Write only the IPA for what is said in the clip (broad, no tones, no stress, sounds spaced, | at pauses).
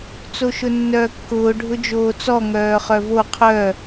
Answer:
t͡s o ʃ ʊ nː œː kː ʊː ɖʱ ʊ d͡ʒ oː t͡s ɔ ŋ œː χ œ v o qʰ œ